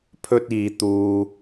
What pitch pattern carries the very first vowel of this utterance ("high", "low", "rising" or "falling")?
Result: high